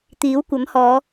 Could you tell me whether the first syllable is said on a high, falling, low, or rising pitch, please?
rising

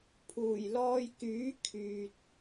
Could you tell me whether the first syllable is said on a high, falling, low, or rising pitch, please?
low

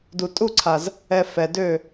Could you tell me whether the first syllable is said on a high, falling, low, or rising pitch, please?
low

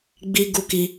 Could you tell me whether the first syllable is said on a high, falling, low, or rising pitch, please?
high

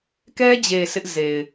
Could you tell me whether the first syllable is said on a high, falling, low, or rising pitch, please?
high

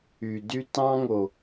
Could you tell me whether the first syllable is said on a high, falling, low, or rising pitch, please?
low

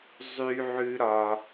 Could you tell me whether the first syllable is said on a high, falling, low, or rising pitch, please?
high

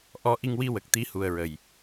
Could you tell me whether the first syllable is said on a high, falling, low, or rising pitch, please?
rising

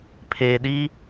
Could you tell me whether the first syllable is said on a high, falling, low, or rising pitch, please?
low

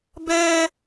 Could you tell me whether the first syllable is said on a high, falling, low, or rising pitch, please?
high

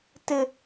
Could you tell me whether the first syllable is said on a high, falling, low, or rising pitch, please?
high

